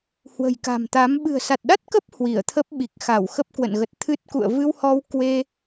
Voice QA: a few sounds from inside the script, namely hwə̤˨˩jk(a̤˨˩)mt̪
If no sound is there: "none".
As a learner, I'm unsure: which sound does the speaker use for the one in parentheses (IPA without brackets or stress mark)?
a̤˨˩